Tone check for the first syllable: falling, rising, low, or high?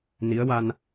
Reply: rising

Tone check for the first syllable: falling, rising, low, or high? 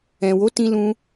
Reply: low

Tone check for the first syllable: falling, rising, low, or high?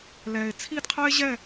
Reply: low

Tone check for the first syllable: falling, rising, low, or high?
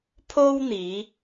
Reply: high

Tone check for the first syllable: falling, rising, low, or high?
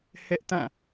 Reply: high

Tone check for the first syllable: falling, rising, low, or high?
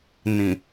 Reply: low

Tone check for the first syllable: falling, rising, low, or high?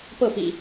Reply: falling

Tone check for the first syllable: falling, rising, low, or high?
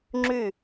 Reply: falling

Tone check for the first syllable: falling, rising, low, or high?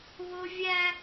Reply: high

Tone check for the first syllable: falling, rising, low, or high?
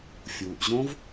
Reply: low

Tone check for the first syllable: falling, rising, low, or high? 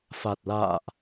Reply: low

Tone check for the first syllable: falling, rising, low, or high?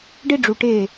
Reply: high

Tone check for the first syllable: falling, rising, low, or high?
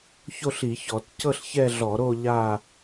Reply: falling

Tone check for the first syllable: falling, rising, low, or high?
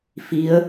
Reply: rising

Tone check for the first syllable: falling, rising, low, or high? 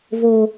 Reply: low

